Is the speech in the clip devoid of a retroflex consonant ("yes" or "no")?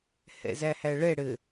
no